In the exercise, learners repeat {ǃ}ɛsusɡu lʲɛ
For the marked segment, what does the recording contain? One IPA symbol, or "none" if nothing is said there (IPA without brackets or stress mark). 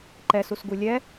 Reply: ǃ